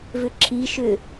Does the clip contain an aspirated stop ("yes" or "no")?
yes